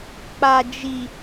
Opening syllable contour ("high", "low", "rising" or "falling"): low